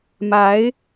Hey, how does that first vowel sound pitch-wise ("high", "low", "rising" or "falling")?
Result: rising